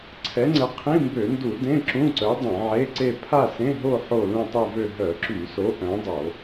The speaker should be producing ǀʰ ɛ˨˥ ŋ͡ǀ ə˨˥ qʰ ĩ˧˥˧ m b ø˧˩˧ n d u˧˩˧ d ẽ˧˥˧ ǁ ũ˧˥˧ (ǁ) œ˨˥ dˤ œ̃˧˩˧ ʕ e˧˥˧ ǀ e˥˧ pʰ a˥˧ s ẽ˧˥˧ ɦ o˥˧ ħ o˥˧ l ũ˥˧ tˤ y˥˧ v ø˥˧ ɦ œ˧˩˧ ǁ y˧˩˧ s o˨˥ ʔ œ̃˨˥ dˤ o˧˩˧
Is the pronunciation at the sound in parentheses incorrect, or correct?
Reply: incorrect: ǀ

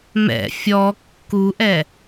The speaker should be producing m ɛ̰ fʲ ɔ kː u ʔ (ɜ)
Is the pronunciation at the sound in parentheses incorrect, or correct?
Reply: incorrect: ɛ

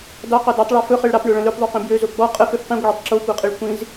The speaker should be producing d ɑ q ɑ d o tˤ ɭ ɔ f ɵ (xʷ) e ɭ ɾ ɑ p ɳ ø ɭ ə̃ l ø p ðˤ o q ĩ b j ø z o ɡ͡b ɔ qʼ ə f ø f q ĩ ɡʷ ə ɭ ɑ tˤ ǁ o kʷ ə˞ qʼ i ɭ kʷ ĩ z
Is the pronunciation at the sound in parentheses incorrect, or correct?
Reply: incorrect: χ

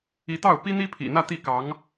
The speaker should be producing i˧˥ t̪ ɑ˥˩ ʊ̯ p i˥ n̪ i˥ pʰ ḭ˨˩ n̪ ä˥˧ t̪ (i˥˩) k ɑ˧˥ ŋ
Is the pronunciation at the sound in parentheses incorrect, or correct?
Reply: correct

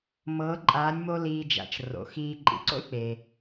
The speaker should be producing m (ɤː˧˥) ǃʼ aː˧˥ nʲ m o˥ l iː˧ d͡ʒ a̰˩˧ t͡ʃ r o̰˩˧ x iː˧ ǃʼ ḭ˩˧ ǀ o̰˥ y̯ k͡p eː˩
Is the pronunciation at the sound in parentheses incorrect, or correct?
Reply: correct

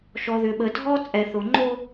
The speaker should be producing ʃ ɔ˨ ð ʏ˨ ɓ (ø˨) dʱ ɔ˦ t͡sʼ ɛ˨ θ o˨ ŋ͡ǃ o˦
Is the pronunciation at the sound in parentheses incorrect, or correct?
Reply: incorrect: ə˨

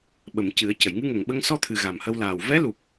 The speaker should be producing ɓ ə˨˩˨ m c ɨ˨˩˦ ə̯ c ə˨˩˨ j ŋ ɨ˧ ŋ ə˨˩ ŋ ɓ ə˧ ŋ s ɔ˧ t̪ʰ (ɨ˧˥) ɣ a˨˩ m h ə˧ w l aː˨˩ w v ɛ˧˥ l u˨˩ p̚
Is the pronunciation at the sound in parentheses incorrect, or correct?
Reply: incorrect: ɨ˨˩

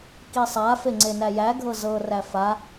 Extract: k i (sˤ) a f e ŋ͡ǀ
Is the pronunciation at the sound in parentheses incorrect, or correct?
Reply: correct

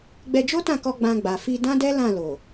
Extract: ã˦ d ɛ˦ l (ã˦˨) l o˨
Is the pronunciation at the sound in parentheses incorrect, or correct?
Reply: correct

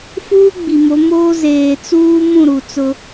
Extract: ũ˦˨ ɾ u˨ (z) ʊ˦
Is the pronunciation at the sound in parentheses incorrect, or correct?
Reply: incorrect: t͡s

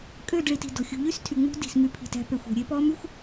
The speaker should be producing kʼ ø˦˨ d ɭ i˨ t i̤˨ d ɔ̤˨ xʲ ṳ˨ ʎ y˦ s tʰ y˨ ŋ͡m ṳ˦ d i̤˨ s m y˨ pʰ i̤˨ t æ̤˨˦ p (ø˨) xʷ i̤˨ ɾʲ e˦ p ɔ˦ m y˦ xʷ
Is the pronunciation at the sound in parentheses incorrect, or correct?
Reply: incorrect: e˨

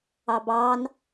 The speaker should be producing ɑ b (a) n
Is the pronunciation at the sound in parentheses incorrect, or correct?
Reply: incorrect: ɑ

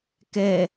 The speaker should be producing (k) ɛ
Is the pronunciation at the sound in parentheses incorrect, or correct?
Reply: correct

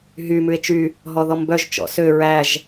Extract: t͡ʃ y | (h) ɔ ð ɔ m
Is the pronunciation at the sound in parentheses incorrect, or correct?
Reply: incorrect: ɦ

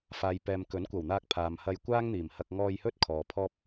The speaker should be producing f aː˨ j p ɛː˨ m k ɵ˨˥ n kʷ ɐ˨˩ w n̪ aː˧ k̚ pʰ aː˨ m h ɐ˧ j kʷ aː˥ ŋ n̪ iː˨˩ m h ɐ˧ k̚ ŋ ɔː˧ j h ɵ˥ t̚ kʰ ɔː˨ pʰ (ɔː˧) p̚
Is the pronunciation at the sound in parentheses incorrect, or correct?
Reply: incorrect: ɔː˥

